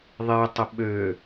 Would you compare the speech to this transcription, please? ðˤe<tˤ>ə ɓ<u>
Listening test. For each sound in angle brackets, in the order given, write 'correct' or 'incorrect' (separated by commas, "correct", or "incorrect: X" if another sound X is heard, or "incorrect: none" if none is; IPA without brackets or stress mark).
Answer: correct, incorrect: ø